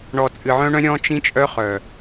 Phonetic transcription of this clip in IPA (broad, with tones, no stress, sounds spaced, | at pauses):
ɳ ɔ˨ t͡sʼ ɨ˨ ʕ œ̃˦ ɳ œ̃˦ ɾʲ ɔ̃˦ t͡ʃ ĩ˦ t͡ʃʼ œ˦ χ œ˨